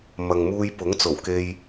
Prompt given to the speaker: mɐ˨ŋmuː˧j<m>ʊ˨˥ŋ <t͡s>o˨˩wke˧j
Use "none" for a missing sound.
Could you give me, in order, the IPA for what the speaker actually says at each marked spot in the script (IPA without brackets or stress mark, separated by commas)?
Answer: p, t͡s